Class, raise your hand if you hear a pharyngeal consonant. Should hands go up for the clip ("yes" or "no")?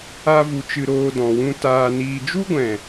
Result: no